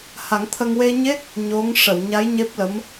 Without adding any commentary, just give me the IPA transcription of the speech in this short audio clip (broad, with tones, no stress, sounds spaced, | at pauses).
h a˨˩˦ ŋ t̪ʰ ə˧ ŋ w e˧ ɲ e˦˥ k̚ | ɲ o˧˥ ŋ ʂ ə˨˩˨ w ɲ a˧˥ j ɲ e˦˥ p̚ l ə˧˥ m